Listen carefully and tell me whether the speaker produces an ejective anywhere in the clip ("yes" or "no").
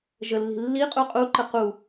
yes